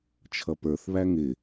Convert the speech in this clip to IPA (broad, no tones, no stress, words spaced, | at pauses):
t͡ʃʰʌpə˞θβæ ŋɪ